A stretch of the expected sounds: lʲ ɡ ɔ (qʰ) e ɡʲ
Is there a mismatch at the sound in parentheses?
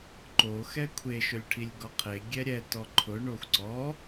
no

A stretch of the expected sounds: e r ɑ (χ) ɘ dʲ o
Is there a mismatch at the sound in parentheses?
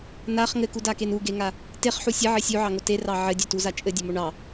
yes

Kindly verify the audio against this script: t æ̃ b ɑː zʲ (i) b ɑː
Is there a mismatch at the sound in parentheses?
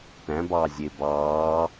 yes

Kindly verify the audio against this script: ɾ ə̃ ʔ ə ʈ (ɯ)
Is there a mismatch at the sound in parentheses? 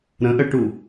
yes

